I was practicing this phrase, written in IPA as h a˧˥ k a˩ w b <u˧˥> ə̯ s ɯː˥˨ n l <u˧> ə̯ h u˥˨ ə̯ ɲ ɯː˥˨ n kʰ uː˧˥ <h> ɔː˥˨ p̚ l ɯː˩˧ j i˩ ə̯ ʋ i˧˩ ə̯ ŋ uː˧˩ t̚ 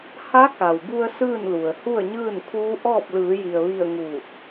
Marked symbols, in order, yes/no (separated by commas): no, no, no